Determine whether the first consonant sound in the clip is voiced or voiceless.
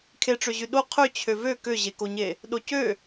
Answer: voiceless